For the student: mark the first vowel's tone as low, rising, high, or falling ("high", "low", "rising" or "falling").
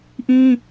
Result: high